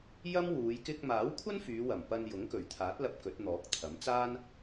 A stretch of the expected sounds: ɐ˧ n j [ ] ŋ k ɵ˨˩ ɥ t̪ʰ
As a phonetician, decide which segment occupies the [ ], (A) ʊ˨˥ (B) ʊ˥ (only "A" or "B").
A